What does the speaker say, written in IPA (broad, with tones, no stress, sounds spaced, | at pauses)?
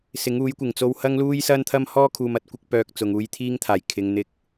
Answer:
s ɪ˨˥ ŋ uː˨˥ j kʷ ɪ˨˩ ŋ t͡s o˧ w h ɐ˥ ŋ l uː˥ j s ɐ˥ n t̪ʰ ɐ˥ m h ɔː˥ kʰ uː˨ m ɐ˧ t̚ kʷ ɪ˨˥ k̚ p œː˨ k̚ t͡s ʊ˨ ŋ uː˧ j t̪ʰ iː˥ ŋ t̪ʰ aː˨˩ j kʰ ɪ˨ ŋ n̪ ɪ˧ k̚